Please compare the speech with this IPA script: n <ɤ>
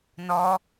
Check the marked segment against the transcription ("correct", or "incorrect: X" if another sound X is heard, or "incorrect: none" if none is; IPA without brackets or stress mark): incorrect: ɔ